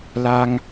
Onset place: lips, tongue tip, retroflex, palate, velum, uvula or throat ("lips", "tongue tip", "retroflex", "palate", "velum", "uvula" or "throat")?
tongue tip